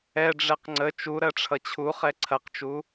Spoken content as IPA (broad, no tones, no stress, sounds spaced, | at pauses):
ɛ ɖ͡ʐ ɛ q ŋ͡ǀ ə t͡ʃ u ɾ ɜ ʈ͡ʂʰ ʌ t͡ɕʰ u χ ɛ ǀʰ ɐ q t͡ʃ u